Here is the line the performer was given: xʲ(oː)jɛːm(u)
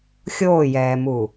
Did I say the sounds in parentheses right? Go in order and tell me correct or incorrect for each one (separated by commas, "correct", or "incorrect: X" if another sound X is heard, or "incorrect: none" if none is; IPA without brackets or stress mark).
correct, correct